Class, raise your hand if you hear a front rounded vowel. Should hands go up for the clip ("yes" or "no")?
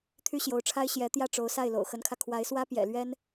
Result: yes